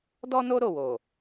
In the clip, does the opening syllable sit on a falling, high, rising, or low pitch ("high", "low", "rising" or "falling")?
high